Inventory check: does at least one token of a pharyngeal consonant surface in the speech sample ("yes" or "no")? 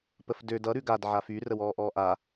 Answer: yes